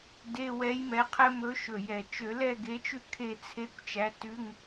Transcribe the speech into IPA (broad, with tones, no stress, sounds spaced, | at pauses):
d e˧˥˧ w ɛ˨˥ j m ɛ˨˥ qʰ ɛ˦˥ m ɵ˨˥ ʃ ɵ˨˩ j ɛ˨˩ t͡ʃ ø˧˩˧ l ɛ˥˧ ɡ e˨˥ t͡ʃ ʉ˥˧ kʰ e˥˧ t͡sʰ e˧˥˧ kʷ t͡ʃ æ˨˥ t ʉ˧˥˧ ŋ